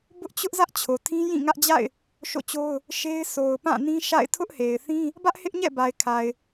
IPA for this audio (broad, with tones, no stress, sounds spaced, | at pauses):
b ʊ˦ ʔ t͡ɕ ʊ˦ ʔ z ä˦ ʔ t͡ɕʰ o˨ tʰ ĩ˦ j ĩ˦˨ ŋ ä˦ ʔ d͡ʑ a̰˦˨ ɪ̯ | ʃ o̰˦˨ t͡ɕ o˦ ʊ̯ | ʃ e˦ ɪ̯ sʰ o˨ ʊ̯ p ã˦˨ n ĩ˦ ʃ a̰˦˨ ɪ̯ tʰ ʊ˦ ʔ h e˨ ɪ̯ θ ĩ˦ | b ä˦ ʔ h ɪ˦ ʔ ɲ ɛ̰˦˨ b a˨ ɪ̯ kʰ a˨ ɪ̯